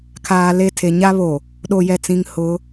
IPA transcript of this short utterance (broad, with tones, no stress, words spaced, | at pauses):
kʰaː˨le˦˨tʰe˨ ɲa˦βo˨ | ɗo˨jɛ˨t͡sĩ˨ŋ hʊ˨˦